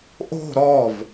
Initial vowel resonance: oral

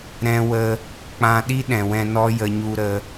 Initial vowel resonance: nasal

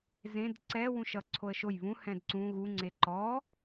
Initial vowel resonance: nasal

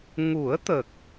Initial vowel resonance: oral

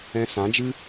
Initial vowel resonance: nasal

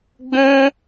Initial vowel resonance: nasal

